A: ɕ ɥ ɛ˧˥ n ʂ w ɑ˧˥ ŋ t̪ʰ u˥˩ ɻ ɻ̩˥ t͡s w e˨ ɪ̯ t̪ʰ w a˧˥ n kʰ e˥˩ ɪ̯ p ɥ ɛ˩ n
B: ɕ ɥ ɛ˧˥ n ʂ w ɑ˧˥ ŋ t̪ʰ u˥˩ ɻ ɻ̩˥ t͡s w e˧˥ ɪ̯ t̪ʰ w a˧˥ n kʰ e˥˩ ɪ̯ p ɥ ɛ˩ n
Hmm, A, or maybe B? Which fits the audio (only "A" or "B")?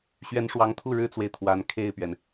A